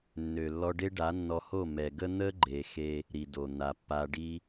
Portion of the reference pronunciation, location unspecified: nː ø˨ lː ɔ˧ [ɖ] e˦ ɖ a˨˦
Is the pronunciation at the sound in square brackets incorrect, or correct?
correct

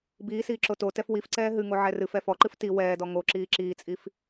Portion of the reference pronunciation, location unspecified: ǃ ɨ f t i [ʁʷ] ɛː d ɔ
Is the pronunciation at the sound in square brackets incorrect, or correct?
incorrect: w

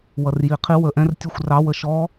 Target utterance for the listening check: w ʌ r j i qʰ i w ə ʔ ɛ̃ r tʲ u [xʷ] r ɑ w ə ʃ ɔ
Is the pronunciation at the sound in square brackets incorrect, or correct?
correct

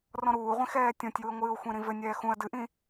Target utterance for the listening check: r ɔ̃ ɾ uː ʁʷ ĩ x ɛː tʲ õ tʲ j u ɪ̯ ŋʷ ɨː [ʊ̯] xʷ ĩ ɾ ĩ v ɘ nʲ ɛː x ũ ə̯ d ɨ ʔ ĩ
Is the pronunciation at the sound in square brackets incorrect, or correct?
correct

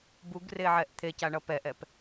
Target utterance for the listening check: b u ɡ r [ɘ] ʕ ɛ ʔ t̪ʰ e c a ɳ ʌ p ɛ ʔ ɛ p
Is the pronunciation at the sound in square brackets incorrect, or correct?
incorrect: e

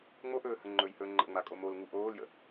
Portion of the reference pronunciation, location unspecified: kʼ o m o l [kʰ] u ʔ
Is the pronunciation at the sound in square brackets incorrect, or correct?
incorrect: ŋ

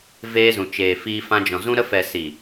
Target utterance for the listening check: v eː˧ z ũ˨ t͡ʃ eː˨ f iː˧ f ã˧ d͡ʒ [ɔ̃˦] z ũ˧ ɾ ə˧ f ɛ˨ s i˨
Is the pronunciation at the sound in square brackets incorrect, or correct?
incorrect: ɔ̃˨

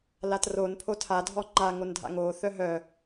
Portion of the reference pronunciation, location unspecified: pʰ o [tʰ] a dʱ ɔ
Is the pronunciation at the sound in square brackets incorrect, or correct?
correct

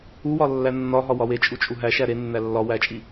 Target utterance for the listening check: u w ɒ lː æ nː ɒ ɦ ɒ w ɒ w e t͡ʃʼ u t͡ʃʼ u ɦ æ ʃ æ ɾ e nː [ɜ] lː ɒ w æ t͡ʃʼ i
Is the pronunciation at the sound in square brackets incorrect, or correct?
incorrect: æ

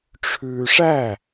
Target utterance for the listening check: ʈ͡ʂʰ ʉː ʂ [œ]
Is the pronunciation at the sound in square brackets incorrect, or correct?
incorrect: æ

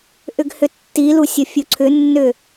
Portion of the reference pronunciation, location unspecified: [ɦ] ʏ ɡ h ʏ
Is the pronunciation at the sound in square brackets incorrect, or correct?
incorrect: ʔ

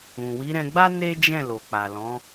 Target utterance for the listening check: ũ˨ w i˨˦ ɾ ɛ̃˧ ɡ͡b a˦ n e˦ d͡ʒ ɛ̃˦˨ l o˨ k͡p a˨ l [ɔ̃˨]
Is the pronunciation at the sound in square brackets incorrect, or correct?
incorrect: ɔ̃˨˦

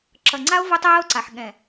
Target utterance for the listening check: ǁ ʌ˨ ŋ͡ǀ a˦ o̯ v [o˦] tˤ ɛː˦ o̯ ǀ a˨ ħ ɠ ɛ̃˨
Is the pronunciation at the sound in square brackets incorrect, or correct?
correct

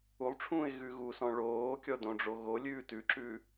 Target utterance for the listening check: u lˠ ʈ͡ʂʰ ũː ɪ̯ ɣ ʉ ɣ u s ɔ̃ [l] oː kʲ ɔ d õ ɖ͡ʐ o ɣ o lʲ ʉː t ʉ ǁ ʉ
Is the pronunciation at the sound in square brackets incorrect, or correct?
incorrect: ɭ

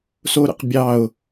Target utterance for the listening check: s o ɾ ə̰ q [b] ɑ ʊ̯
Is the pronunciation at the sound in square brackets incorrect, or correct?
incorrect: bʲ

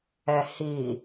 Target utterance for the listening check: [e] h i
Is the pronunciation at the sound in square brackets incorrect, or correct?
incorrect: ɛ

